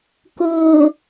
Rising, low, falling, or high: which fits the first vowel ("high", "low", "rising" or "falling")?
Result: low